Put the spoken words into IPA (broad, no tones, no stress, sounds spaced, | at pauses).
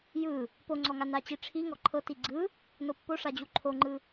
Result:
j ɯ | p o ŋ͡ǀ ɔ ŋ a n a t͡ɕ i ʈ͡ʂʰ i ŋ ɔ ǃʰ ɤ t i ɡ͡ǀ ɯ | n o pː o ʂ a d͡ʑ u ǃʰ o ŋ͡ǃ ɯ